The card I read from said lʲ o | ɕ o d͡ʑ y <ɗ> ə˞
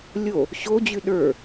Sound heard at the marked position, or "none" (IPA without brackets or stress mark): ɗ